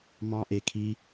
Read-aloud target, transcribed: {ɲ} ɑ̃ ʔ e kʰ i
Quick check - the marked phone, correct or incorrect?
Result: incorrect